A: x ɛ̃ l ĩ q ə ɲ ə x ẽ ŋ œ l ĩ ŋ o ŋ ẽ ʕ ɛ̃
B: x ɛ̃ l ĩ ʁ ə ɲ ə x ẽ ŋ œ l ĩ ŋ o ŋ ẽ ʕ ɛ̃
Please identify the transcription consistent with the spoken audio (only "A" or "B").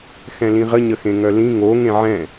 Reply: B